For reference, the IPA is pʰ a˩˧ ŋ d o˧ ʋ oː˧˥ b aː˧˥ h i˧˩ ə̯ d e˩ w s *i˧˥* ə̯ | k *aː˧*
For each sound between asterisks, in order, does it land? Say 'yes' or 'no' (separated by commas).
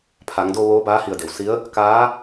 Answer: yes, no